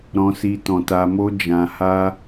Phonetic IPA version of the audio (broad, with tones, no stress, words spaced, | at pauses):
ɾɔ̃˧si˧tɔ̃˨ ta˧mo˦d͡ʒã˧ha˦